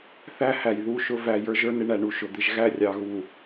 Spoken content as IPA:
θ æ˦ h æ˨ j ð u˦˨ ʃ ʊ˦ v æ˨ j ə˞˦ ʒ ə˞˦ n ɪ˦ ɳ æ˨ ɳ u˨ ʃ ʊ˨ d̪ ɪ˦ ʒ ɣ æ˦˨ rʲ ɑ˨ ɣ u˨

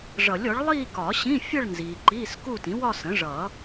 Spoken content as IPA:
ʐ ʌ˨˩˦ lʲ ɔ˩˥ ɭ lˠ iː˥˧ k ɒ˨˩˦ ɕ ĩ˧˥˧ fʲ ʌ˥˧ ɭ n z iː˨ ǃ iː˧˥˧ s k u˥˧ t ĩ˩˥ w ɒ˥˧ s ə̃˩˥ ʐ ʌ˨˩˦

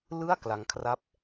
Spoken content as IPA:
l ɯ˥˩ a̯ k l a˦˥ ŋ kʰ r a˥˩ p̚

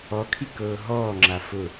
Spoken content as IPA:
ɔ kʰ i k ɤː ɦ ɔː ŋ͡ǁ a f ʊ

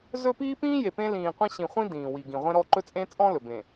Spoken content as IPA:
z ɵ˦ p iː˦ p ĩː˦ j e˨ p ẽ˦ l ĩː˨ qʷ ĩ˦ ɕ ĩ˨ χʷ ĩ˦ d ĩː˨ w i˨ ɡ ĩ˨ ʁʷ ẽ˦ ɾ ɔ˦ ǃ ɵ˦ t͡sʼ ẽ˦ t͡sʼ ɔ̃˦ l ɵ˨ b ẽ˨

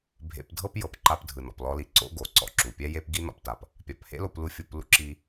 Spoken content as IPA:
bʱ ḛ˧ p dʱ ɤ˥ p j ɤ˩ p ǃ a˧ p dʱ ɯ˩ n ɔ̰˩ p l ɔ˧ l i˩ ǀ o̰˥ ɡ o˩ ǀ ɔ̰˧ ǁ u˩ pʲ ɛ˥ j e˥ p ɡ i˥ n ɔ̰˧ p t a˩ p | pʲ a˩ p h ḛ˥ l o˧ p l u˧ fʲ o˧ p l ṵ˥ ǁ i˧

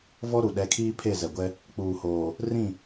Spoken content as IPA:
v ɔ˦ ɾ u˨ ɗ ɛ˨˦ kʰ iː˦ pʰ e˦˨ z ɛ˨ ɡʷ ɛ˦ | k͡p uː˨ h oː˨ | r ĩ˦˨

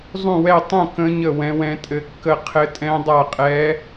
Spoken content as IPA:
zˤ ũ˥˧ w ɛ˥˧ tˤ ũ˥˧ k ə̃˦˥ ɲ ə˥˧ w ɛ̃˦˥ w ɛ̃˦˥ tʼ ɘ˦˥ kː ə˥˧ qʰ ɘ˦˥ tʼ ɛ̃˦˥ dˤ a˥˧ qʼ ɛ˦˥

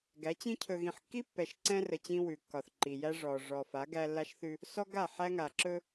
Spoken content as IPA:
ɡ æ˨˦ t͡ɕ ĩ˦ cʰ ɵ˨ ɣ ĩ˨ ħ kː i˦ pː ɛ˨ ʃ ǀ ɛ̃˦ r ə˨ t͡ɕ ĩ˦ w ʉ˨ kː ɒ˨ θ ǃ i˨ j æ˦ ʐ ɔː˨ ʐ ɔ˨ f a˨˦ ɡ æ˦ lː a˦ ʃ θ ʉ˦ | s ɔ˦ ɡ a˦˨ ħ æ˦ ŋ a˨ ǁ ɵ˦

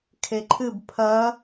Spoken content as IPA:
kʰ e ǃʰ ɨ b pʰ ɐ

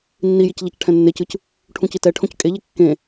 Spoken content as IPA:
nː i j i c ʎ a c ʈʰ ɛ̃ nː e c ɯ c | ʈʰ ũ c i t ɛ ʈʰ õ c kʼ e ʎ e kː ẽ

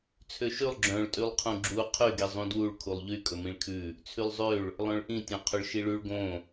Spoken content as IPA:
t͡sʰ ø ʃ ʉ lˠ ɡ͡ǁ œ̃ ɭ tʼ y lˠ qʰ ũ ɡ͡ǁ u qʰ y ɡ i zˤ ũ d w u ɭ kʰ u lˠ ʎ y kʼ ɵ m ĩ ɭ kʰ ʉ | t͡sʰ y lˠ zˤ ø ɭ | lˠ œ̃ ɭ ʔ ĩ tʲ œ̃ qʰ ɵ ɭ ʃ i ɭ ʉ ɭ ɡ õ

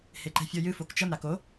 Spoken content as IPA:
h e ǃ ɛ̤ fʲ ɔ j ɨ f o k t͡ʃ ɐ m ɾ a k o

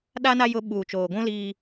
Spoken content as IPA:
ɗ a˦ n a˦ j ʊ˦ ɓ uː˨ t͡ʃ oː˨ ɡʷ ũ˦ l iː˦

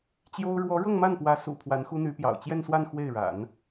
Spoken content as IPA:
t͡ɕ j o˥ ʊ̯ ɻ w ɔ˧˥ ɻ ɤ˥˧ ŋ m a˥˩ n p w ä˧˥ s ṵ˨˩ pʰ w a˧˥ n x u˥ n̪ y˧˥ p j ɑ̰˨˩ ʊ̯ t͡ɕ j ɛ˥˧ n s w a˥˧ n x w e˥˩ ɪ̯ ɻ a̰˨˩˦ n

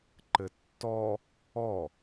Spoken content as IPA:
ǃ ɘ tː ɔ | ɔ

